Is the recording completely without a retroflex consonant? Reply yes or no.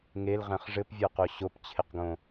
no